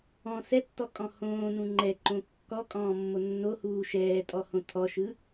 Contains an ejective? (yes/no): yes